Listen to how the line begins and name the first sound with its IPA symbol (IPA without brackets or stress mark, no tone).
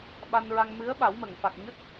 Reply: ɓ